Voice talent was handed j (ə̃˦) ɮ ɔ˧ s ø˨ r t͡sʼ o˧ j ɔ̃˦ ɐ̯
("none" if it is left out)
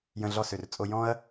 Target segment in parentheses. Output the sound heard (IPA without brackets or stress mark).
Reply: ə̃˧